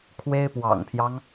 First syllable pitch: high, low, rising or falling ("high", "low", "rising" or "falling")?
high